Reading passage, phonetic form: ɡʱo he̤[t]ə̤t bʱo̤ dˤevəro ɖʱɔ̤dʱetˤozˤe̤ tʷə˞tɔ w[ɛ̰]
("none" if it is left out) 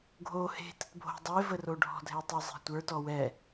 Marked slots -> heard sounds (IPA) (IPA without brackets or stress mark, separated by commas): t, ɛ